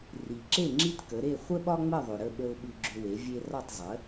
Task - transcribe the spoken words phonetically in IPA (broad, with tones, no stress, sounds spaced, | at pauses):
r i˩ ǁ e˥˩ ŋ͡ǁ i˥ t k ə˩˥ ɾ e˥˩ χʷ ə˥ ɓ ɒ˥ ŋ͡m ə˥˩ ðˤ ʏ˩ ɾ ə˥˩ ɓ ə˧ ʊ̯ ɓ ʉ˧ ɡ͡ǁ ʏ˧ w e˩˥ vʲ e˧ r ɒ˥˩ tˤ zˤ ə˩˥